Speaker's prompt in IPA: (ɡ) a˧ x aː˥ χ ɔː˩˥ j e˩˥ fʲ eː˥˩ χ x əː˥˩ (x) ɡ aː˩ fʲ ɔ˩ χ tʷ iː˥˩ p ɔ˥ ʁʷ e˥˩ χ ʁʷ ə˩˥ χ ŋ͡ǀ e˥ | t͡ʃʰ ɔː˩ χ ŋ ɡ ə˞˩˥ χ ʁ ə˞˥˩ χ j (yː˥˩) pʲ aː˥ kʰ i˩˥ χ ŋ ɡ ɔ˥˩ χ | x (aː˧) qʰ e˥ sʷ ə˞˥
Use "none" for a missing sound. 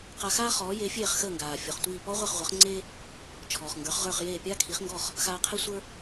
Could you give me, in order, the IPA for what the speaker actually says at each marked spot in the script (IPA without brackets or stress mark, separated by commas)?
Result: q, ŋ, eː˥˩, aː˧